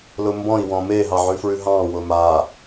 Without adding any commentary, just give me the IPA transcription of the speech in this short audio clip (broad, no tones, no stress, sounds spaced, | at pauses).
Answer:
l ʊ m b ɔ̃ i̯ w ɔ̃ m e ɦ ɑ ʕ ʉ f ɹ ʉ ɦ ɑ̃ w ʊ m a